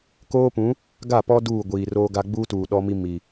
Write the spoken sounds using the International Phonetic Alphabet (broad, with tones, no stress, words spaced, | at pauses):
koː˦pũ˨˦ | ɡa˦˨pɔ˦ duː˦˨ɡʷiː˨roː˦ɡa˦ ɡ͡buː˦tuː˨ ɗɔ˦mi˦ mi˨